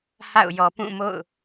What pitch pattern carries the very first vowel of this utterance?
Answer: falling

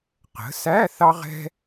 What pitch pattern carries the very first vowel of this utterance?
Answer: rising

